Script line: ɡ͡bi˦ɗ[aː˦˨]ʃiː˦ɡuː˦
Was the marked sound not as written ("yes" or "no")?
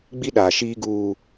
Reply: yes